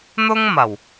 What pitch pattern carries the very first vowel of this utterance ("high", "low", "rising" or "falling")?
high